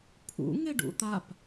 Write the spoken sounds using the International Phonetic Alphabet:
pʰṵ ŋeɖṵt̪ap

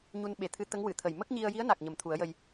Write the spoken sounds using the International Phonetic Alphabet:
ɲu˧n ɓe˨˩t̪ʰɨ˧˥ t̪ə˧˥ŋwɨ˨˩˨t̪ʰə˨˩j mə˦˥k̚ɲi˧ə̯ji˧˥ə̯na˨˩k̚ ɲə˨˩mt̪ʰu˨˩˦ə̯jə˧j

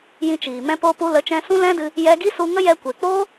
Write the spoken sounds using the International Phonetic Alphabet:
jĩ˧t͡ʃiː˨ mɛ̃˦poː˦ pu˧lə˨˦t͡ʃɛ̃˧ sũ˦lɛ̃˦dɨ˧ | jɛ˧ɡi˦ su˧ŋə˦ jɛ˧kʷe˨k͡poː˦

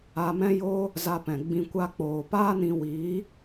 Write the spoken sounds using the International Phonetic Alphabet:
a˧mɛ̃˦jo˦ | za˧ pɛ̃˨ɡ͡bĩ˧ kʷa˧k͡poː˨ paː˦nĩ˧ wi˨˦

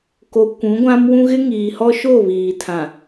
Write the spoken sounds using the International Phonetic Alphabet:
ko˨ kʷũ˨˦ɡʷã˦mwũ˦ ɣɪ˦ŋiː˨hɔ˦ʃo˦˨ βiː˨tʰã˨

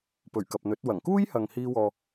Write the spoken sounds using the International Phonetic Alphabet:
pɵ˨˩ɥkɐ˨p̚n̪ɵ˨˥t̚wɐ˨˩ŋ kuː˥jhɐ˨ŋ hiː˥wɔː˧

